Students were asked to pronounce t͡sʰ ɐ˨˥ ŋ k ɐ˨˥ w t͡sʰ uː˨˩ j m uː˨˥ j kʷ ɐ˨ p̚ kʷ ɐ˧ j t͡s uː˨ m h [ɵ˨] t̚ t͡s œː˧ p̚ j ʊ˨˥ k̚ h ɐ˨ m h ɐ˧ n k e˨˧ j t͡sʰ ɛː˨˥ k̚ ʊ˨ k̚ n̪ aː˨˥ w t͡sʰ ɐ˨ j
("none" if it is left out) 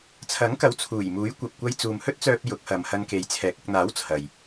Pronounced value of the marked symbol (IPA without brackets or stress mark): ɵ˥